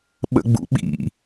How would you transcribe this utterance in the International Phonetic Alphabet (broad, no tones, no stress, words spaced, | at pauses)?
ɓə̰ɡ͡bṵɓḭ